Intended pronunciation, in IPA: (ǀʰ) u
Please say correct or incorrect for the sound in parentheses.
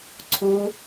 correct